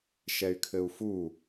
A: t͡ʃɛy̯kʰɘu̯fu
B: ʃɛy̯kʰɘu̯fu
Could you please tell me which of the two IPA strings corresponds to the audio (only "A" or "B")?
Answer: B